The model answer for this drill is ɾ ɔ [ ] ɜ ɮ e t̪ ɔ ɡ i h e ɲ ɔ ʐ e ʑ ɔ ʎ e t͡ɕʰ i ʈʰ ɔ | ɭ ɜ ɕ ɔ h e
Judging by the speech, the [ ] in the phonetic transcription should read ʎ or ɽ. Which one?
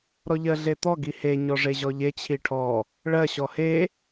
ʎ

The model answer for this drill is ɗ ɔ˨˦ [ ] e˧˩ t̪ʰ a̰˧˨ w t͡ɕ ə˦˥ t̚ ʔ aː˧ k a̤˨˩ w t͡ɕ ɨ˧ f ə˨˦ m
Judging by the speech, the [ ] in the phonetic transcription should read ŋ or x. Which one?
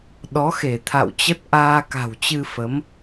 x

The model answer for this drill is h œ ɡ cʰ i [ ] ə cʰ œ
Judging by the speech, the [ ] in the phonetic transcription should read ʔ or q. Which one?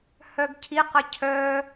q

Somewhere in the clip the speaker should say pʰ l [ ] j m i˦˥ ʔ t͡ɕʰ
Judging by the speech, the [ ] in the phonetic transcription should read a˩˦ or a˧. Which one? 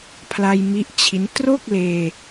a˧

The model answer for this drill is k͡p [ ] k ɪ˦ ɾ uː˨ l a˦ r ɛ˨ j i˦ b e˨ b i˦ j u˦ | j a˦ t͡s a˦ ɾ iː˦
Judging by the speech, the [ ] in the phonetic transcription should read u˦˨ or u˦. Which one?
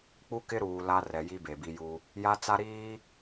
u˦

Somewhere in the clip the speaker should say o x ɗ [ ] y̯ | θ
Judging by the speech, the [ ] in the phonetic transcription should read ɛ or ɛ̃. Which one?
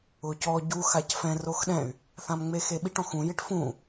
ɛ̃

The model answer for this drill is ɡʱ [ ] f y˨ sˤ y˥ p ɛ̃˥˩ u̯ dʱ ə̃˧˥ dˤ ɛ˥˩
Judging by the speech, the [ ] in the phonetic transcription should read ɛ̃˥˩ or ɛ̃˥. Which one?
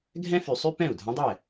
ɛ̃˥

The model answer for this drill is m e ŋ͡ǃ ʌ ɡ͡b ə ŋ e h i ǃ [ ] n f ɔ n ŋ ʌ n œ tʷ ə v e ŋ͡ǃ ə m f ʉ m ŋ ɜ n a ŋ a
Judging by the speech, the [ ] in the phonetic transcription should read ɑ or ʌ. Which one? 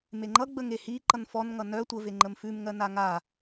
ʌ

